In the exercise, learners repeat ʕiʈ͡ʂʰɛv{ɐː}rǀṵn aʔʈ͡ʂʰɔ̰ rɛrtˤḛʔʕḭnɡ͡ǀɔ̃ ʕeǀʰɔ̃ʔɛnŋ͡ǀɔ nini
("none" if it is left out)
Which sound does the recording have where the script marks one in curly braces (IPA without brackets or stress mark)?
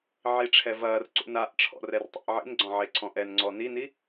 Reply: ɐː